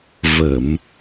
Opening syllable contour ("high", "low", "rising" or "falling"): low